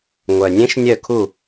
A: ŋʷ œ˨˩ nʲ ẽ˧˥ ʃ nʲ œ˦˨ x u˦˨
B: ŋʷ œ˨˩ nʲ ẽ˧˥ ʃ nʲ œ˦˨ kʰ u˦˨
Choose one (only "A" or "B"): B